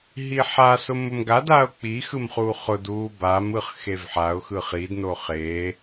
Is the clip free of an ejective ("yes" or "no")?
yes